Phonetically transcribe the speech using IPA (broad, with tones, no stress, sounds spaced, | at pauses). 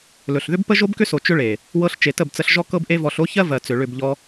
l ɵ˨ ɬ ð ʏ˦ b p ə˦ ʒ o˦ b k ʏ˦ s o˨ t͡ʃ ʏ˦ ɭ e˨ | w ɤ˧ ɬ t͡ʃ e˨ t ə˦˨ b t͡s ə˧ ɬ ʒ ɔ˦ k ɤ˦ b ʔ e˦ v ɔ˧ ɬ o˦ ç ɜ˦ v ɜ˨ t͡s ʏ˨ ɭ ʏ˦˨ b ʎ ɔ˧